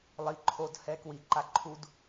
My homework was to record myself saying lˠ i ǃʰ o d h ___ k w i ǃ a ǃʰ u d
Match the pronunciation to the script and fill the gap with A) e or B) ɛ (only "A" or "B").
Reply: B